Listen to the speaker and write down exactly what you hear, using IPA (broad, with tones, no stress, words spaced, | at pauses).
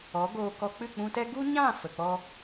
ɔ˨˦ɡoː˧kɔ˧ k͡pɨ˦˨k͡pũ˧tɛ˦ ɡu˦ɲã˦˨ fə˨k͡pɔ˦